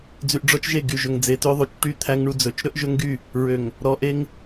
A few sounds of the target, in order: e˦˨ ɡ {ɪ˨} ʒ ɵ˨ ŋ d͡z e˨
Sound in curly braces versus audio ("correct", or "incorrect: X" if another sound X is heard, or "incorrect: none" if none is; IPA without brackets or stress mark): incorrect: y˨